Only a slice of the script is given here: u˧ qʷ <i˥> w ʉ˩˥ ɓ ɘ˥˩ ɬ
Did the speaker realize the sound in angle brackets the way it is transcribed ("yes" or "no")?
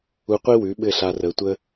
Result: yes